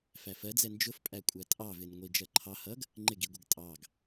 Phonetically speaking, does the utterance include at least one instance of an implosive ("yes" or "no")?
no